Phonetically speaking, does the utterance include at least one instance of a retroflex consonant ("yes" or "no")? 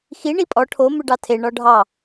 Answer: yes